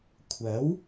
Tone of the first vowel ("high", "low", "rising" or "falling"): rising